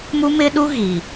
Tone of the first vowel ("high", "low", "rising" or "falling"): high